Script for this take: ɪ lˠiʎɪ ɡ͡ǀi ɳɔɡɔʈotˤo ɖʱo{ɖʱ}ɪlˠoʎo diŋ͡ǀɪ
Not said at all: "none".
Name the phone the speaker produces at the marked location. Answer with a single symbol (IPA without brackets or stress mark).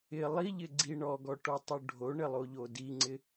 ɳ